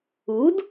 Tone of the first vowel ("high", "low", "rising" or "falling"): rising